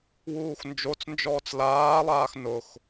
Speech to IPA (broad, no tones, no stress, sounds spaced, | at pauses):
w uː x n d͡ʒ o t͡s n d͡ʒ ɔː t͡s l aː lˠ aː x n ʊ x